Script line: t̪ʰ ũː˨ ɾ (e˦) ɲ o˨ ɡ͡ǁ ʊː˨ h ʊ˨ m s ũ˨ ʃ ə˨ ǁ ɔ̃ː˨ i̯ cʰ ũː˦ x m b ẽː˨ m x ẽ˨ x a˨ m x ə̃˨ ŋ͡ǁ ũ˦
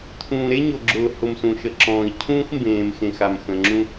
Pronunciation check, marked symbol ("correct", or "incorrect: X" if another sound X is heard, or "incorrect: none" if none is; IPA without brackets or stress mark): correct